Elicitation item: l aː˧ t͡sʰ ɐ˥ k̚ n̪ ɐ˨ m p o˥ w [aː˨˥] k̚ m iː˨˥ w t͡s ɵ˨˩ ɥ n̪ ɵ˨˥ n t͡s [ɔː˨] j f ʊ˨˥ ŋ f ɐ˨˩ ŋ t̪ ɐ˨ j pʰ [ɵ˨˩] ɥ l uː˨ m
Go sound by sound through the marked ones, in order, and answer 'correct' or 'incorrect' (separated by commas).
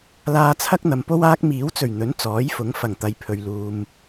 incorrect, incorrect, incorrect